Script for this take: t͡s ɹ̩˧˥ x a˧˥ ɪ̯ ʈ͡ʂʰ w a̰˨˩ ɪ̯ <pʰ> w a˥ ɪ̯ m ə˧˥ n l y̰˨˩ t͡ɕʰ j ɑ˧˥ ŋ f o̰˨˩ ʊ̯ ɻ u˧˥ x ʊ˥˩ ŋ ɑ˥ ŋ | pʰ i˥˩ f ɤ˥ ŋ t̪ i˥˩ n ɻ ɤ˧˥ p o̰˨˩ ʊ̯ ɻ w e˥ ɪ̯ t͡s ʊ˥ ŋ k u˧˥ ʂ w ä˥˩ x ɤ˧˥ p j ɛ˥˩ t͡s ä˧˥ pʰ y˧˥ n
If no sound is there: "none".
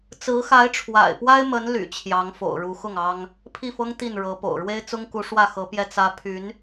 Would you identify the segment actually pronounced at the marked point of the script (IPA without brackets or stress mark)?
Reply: p